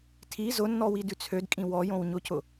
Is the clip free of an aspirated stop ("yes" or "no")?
no